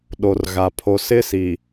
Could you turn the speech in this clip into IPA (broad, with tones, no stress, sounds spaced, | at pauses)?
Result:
ɗ o˨ r ɣ a˨ pʰ o˨ s ɪ˦˨ s i˨